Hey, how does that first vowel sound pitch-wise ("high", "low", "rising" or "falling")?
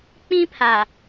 high